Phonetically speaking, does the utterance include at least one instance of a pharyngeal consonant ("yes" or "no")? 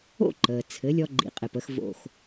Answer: no